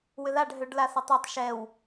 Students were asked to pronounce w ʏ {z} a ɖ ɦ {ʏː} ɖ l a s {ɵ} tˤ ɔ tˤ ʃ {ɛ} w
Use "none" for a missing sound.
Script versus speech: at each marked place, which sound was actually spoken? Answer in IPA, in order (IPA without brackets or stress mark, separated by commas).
ð, ʏ, ɔ, ɛ